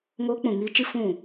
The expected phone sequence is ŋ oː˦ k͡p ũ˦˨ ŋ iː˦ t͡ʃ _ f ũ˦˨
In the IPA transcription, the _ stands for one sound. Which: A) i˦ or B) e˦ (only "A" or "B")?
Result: A